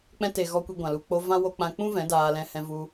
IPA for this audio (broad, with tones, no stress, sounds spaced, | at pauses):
k͡p ɛ̃˧ t e˨ ɣ ɔ˧ kʷ i˧ ɡʷ ã˨ l u˨ k͡p o˧ v ã˧ w o˧ k͡p ã˧ k͡p ũ˦ v ɛ̃˨˦ d aː˧ l ɛ̃˧ h ɛ̃˧ v u˧